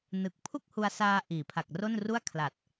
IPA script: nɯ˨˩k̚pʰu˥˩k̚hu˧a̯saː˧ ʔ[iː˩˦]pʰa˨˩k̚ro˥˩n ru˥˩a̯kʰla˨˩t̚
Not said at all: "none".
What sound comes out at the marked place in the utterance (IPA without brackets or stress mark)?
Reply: iː˩˦